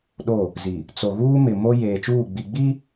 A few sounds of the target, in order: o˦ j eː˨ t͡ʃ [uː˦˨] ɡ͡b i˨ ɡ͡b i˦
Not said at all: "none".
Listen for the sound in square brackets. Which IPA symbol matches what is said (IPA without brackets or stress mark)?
uː˦˨